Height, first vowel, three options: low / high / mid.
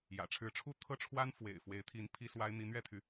low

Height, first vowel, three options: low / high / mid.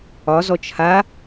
low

